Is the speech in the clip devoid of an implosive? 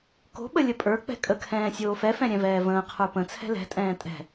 no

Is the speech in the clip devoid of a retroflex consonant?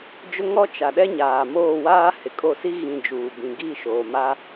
yes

